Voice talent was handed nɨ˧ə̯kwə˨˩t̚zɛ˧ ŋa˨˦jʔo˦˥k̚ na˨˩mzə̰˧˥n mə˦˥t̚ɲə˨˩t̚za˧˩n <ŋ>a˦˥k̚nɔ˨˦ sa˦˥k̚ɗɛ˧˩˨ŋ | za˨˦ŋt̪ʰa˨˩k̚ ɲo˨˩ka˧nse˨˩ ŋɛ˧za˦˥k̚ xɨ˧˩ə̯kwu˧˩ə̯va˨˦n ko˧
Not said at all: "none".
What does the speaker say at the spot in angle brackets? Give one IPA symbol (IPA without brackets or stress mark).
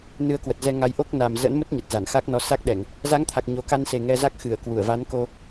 x